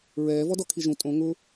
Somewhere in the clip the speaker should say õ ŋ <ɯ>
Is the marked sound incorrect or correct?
incorrect